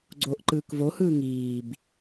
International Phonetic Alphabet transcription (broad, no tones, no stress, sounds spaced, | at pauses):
ɡ͡ǀ oː ʔ ǃ ɯː k v o h ɯː ŋ iː b